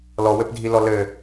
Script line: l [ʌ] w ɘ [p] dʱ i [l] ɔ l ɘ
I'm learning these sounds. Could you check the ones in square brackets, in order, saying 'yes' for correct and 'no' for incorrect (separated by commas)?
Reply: no, yes, yes